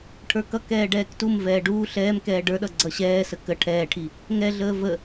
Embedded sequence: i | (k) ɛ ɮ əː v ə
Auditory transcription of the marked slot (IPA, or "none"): ŋ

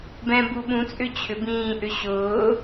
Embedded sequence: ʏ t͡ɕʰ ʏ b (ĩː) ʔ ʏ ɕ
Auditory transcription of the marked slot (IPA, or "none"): ĩː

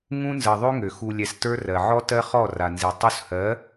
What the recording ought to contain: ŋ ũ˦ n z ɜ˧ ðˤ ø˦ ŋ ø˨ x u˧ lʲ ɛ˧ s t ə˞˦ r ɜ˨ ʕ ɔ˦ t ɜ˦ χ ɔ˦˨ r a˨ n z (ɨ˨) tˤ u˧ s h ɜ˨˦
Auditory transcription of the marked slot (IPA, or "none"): i˨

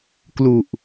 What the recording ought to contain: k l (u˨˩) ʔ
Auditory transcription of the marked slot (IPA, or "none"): u˨˩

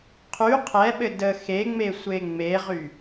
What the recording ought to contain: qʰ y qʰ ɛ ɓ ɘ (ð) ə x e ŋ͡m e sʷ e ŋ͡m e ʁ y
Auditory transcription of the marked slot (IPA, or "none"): d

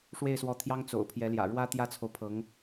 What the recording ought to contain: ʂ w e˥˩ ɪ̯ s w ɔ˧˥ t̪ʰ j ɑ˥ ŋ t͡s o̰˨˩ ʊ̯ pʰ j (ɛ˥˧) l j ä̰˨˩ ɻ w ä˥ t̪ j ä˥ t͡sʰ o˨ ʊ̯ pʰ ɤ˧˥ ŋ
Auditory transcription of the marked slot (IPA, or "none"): ɛ˧˥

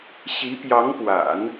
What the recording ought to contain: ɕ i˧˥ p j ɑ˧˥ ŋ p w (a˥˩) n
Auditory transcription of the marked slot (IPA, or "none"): a̰˨˩˦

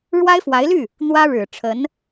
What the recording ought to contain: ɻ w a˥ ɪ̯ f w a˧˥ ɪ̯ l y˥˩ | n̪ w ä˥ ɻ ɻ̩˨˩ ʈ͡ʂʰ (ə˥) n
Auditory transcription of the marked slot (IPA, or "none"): ə˧˥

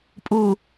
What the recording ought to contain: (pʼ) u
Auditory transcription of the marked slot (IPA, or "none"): pʼ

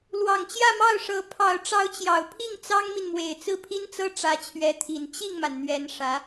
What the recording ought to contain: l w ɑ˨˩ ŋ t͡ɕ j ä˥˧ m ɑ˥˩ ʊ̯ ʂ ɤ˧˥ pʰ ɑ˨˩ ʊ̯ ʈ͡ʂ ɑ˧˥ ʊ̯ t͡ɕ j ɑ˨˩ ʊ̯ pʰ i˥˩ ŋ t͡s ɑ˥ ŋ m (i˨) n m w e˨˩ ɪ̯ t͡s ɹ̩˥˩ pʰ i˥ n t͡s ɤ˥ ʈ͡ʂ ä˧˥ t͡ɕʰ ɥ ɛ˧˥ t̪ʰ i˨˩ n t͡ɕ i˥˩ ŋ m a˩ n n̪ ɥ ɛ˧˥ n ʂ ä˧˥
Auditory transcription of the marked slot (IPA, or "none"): i˨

